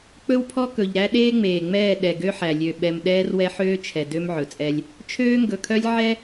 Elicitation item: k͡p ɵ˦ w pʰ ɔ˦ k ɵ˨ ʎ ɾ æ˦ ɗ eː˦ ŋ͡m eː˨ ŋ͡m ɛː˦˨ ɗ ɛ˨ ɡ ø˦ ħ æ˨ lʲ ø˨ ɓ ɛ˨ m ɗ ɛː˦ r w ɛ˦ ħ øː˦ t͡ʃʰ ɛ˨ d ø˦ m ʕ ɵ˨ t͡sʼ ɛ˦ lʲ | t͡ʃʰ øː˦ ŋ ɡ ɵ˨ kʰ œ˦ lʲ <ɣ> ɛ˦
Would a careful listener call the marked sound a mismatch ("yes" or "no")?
yes